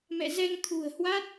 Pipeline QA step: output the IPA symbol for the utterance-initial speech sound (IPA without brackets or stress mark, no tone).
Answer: m